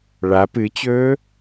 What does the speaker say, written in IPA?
ɭa pɨt͡ɕɵː

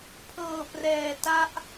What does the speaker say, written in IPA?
pʰɤː˨˩prɛː˨˩ta˦˥ʔ

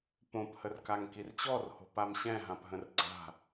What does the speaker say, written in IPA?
põphərkaŋ kirt͡ɕɔrho̤ pamɕɛ̃ ɦãpɦə̃rɡ͡ǀa̤

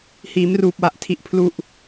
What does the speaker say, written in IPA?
hiː˩˦mruː˨˩p̚wa˨˩ʔ tʰi˨˩ʔ pʰlu˨˩ʔ

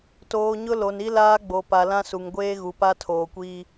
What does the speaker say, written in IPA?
toː˨ɲʊ˦ lo˨ni˦laː˦ ɡ͡bo˨ pa˨lã˦su˨ŋ ɡʷeː˦ɣu˨pa˦ tʰoː˨kʷiː˦

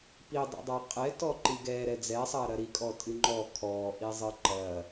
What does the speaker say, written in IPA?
pidˤɛ̰dˤa qʼɛtɔǃi ɡɛɾɛ d͡zɛsˤɐːɾɐ ɾikʼɔtʼɨ ŋ͡ǃɔ kʰɔːʔizˤɨ ǃɐ

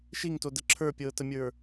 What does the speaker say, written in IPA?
ʃiŋtodə ǁʰə˞pʲɤːtəmʲə˞

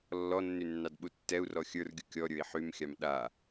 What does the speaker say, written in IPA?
lːɔnːy nːɑdɓutːɛu̯rɔ xʲə˞rɡʲu kʲɔɾʲə˞i̯ ħymxʲɑm ɗa

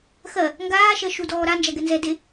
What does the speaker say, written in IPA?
xɜ | ŋɡaːʃɜ ʃudɔː ɾand͡ʒaɡɛ nzɛde

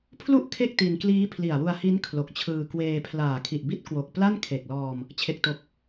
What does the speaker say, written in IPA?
pʰlu˦˥ʔ kʰe˥˩k̚ti˧nkliː˦˥ pʰli˨˩a̯wu˧a̯hi˦˥n kʰlo˨˩k̚t͡ɕʰɯː˧ kweː˧pʰlaː˨˩ kʰi˨˩ʔbi˦˥t̚ kwo˨˩k̚ pla˥˩nkʰe˨˩k̚lɔː˧m | t͡ɕʰe˨˩k̚to˨˩k̚

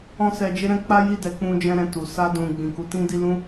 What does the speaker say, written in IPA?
ɔ̃˦sɛ˧d͡ʒe˦ɾɛ̃˦ k͡pa˦ji˦˨dɛ˨˦ k͡pũ˧d͡ʒɛ̃˧ ɾɛ̃˨ tu˨ sa˧dũ˨ ɡ͡bĩ˨ku˨˦ tĩ˦di˦lũ˦

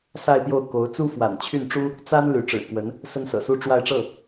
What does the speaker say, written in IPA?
sa˥˧ɪ̯pjo˥˩ʊ̯ ko˧˥ʊ̯ t͡su˥fwa̰˨˩n t͡ɕʰy˥˩nʈ͡ʂu˥ | t͡sa˥n ly˧˥ʈ͡ʂɻ̩˨˩kwə˧˥n | sə˥nsɤ̰˨˩su˥ ʈ͡ʂwa˥˧ɪ̯ʈ͡ʂɤ˥˩

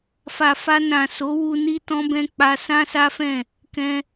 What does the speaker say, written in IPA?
fa˨fa˧ nã˨so˨˦wu˧ ni˦tɔ̃˦bɛ̃˦ k͡pa˦ sã˦sa˦fɛ̃˦˨ | kɛ̃˧

